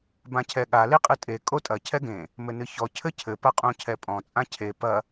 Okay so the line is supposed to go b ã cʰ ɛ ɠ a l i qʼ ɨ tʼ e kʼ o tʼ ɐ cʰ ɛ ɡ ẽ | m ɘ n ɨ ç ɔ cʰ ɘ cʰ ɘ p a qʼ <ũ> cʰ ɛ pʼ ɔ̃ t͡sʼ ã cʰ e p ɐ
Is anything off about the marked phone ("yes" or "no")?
no